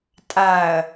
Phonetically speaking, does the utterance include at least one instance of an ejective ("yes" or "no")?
yes